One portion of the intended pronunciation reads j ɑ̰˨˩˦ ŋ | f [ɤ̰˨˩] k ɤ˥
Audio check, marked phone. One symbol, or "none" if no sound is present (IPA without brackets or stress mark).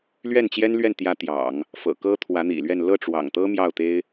ɤ̰˨˩